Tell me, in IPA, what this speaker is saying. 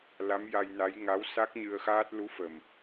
l a˧˥ m j a˧ j n a˧˥ j ŋ a˧˥ w s a˦˥ k̚ ɲ ɨ˧ ə̯ x aː˦˥ t̚ l u˧˥ f ə˨˩ m

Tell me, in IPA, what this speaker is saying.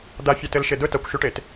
d̪ a fʲ a t ɘ l ʃ e d̪ ɵ t a kʷ ʃ ʉ ʈ e t

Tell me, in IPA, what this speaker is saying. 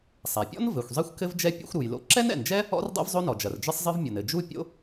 sˤ a˩ pʲ ɔ̰˥ n v ɘ˩ xʷ zˤ i˥ xʷ k ɘ˥ v d͡ʒ ɛ˥ pʲ ɛ̰˥ xʷ ɾ u˩ j l o̰˥ ǁ ɛ˥ n ɛ̰˩ n d͡ʒ ɛ˥ | ɔ̰˥ r dˤ ɛ̰˥ v zˤ o˥ n ɔ˩ d͡ʒ ɐ˩ r d͡ʒ ɨ˥ sˤ zˤ ɨ˥ v mʲ o˩ n ɘ˩ d͡ʒ u˥ pʲ o̰˥

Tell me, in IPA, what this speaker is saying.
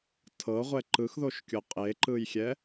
tʰ ɤ ʁʷ ɛ ǃ ɯ x ð o ʃ kʲ o qʼ e ǃ ɯ j xʲ ɛ

